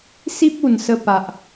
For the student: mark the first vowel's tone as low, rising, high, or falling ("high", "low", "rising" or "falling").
high